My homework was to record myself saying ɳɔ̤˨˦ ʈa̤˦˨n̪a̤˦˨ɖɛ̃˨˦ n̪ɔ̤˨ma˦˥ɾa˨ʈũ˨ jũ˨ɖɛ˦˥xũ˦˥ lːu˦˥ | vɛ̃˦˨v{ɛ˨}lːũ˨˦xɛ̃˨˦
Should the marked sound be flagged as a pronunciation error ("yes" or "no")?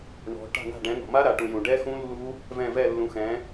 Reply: yes